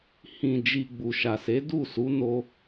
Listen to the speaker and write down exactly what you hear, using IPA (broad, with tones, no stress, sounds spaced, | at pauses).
h ĩ˨ d͡ʒ i˨ ɡ͡b u˨ ʃ a˨ s e˨˦ d u˦˨ s u˨˦ n o˧